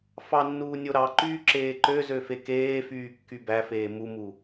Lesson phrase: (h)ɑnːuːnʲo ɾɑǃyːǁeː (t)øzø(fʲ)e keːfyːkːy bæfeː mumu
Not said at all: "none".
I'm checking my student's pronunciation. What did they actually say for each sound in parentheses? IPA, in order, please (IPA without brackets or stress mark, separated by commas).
f, ǃ, f